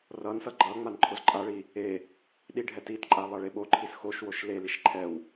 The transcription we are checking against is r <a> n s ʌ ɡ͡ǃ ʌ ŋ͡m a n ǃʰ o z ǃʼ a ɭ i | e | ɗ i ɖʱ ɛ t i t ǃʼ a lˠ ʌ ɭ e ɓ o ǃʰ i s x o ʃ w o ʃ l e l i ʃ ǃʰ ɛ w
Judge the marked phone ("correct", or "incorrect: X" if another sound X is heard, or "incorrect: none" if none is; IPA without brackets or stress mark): incorrect: ʌ